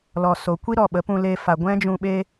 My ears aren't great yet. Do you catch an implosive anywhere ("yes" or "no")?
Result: yes